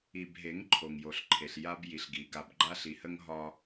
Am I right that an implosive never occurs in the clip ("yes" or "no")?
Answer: yes